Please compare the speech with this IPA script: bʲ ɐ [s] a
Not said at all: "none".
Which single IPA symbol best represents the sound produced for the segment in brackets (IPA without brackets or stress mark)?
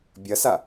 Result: s